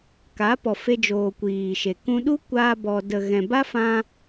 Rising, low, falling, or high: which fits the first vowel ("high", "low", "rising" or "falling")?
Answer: rising